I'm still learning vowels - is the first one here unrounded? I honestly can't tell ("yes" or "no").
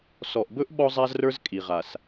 no